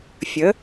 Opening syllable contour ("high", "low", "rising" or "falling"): rising